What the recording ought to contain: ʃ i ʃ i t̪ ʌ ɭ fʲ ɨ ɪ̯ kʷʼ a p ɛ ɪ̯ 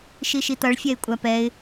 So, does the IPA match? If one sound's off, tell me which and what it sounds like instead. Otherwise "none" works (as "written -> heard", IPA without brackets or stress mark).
ɨ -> ɛ